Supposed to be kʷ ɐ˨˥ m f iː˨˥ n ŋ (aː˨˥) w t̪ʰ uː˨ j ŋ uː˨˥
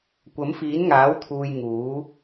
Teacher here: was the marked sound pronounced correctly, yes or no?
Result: yes